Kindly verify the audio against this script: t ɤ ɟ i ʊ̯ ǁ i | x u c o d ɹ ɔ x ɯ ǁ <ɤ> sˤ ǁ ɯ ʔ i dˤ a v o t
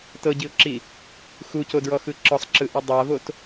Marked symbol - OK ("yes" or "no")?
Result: no